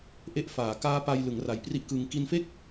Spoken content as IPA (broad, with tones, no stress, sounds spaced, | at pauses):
ʔ e˥˩ ʔ f aː˩˦ k aː˦˥ p a˧ j l ɯ˩˦ ŋ r a˨˩ j p r i˥˩ ʔ k ɯː˧ ŋ k i˧ n f e˥˩ k̚